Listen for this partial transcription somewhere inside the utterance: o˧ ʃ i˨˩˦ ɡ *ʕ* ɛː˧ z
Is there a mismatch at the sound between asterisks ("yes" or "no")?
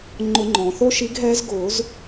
yes